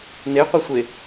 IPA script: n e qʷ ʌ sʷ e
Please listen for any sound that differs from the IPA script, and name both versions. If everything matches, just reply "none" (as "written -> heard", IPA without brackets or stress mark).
none